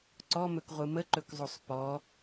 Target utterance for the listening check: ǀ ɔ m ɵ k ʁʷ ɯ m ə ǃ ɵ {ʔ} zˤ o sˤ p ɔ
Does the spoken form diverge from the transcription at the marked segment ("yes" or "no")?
yes